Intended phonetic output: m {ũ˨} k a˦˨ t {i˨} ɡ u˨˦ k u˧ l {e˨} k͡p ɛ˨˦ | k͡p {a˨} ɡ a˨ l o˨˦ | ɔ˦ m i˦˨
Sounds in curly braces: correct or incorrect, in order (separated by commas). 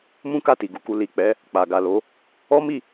incorrect, correct, incorrect, correct